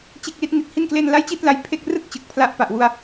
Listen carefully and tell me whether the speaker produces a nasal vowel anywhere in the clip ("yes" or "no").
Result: no